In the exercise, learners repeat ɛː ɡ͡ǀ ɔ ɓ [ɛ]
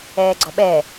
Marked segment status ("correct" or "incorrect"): correct